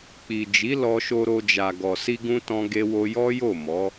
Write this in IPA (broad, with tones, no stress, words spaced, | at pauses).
k͡pi˨d͡ʒi˨˦ lɔ˧ʃo˧ɾo˧d͡ʒa˨ ɡɔ˨si˧ɡũ˧ tɔ̃˧ɡe˧wo˧ jɔ˦jo˦˨ mɔ˨˦